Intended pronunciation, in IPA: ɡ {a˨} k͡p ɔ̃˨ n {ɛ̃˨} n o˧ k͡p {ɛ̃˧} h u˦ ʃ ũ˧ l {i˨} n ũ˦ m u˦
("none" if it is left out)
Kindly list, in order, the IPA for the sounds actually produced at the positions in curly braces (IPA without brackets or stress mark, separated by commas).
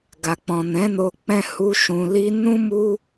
a˨, ɛ̃˨˦, ɛ̃˦, i˦